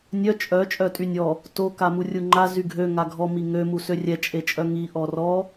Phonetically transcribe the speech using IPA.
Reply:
nʲœ t͡ʃʼœ t͡ʃʼœtʼynʲɔ | to kamurʲuŋ͡ǃa zyɡʱø ŋaɡʱɔ miŋø musørʲɛ t͡ʃʼet͡ʃʼœŋi ʔɔrɔ

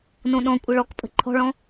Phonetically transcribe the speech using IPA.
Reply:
nõɗɔ̃kʷʼə ɭɔkpʼə̤ ǃʰɔ̤ɭɔ̃

